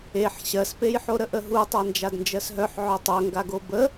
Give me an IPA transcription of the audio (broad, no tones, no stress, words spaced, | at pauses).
eħ ɕɜspejħo ɾəʔəɦu tˤand͡ʒadnd͡ʒɜsɦœħ ʕœtˤœŋɡaɡo bə